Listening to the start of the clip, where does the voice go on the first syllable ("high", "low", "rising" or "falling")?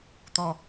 low